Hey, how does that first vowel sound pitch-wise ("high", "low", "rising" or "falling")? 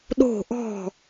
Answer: falling